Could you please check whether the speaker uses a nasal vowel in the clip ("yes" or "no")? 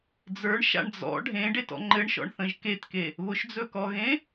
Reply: yes